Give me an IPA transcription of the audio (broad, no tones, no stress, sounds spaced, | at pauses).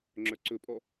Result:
ŋ͡ǁ œ ǀ ɵ pʼ ɔ